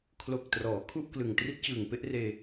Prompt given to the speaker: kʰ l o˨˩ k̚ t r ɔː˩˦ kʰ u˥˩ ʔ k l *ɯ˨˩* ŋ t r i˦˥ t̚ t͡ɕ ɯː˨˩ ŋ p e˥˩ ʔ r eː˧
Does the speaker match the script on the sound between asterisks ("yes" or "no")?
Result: yes